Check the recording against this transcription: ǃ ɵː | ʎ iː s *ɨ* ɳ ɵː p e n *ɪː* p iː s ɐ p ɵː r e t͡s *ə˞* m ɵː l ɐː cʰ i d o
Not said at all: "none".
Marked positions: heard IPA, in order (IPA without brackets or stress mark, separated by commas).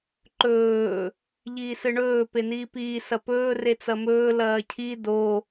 ɨ, iː, ɐ